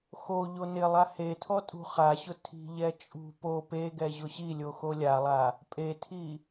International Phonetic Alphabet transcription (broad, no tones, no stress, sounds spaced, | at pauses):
x o ʎ o n ɪ lˠ a h e tʰ ɔ tʼ ṳ χ a ɕ ʊ tʰ i̤ ʎ ɛ t͡ʃʼ ṳ p o p e ɡ ɛ ʑ ʊ ɕ i lʲ o x o lʲ a lˠ a | pʼ e tʰ i